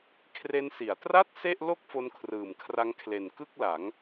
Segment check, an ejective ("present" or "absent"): absent